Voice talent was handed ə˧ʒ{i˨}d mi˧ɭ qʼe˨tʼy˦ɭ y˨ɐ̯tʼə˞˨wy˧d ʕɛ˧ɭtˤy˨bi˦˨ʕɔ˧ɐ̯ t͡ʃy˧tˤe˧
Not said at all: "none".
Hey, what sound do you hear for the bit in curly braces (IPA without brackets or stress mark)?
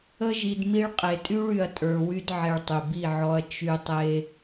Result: i˨